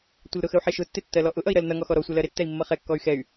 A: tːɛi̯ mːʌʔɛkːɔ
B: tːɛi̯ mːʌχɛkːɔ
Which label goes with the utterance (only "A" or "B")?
B